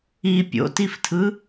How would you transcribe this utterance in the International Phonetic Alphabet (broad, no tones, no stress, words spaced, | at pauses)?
i pʲo̰tiftʰɯ